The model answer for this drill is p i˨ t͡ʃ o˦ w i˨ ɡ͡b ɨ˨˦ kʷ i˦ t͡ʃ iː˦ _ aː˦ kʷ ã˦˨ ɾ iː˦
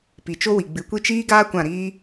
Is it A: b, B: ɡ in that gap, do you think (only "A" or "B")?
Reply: B